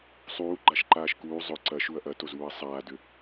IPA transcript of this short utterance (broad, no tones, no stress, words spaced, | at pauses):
sˤuːɡ͡ǃaʃǃaːʃ kuː zˤʊ ǀɐʃuɐ̯ ʔɐtozuːɐ̯ sˤaːdʏ